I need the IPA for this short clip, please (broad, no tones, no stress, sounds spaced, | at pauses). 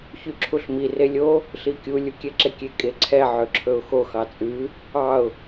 ç y ǁʰ u ɬ m i r e lʲ o | ɬ i kʲ u lʲ u kʲ ɛ ǁ e kʲ e kʼ e ǀʰ ɛ ʕ ø ǁʰ ɵ ʊ̯ x o x ɑ t͡sʼ ʉ | ɑ ʊ̯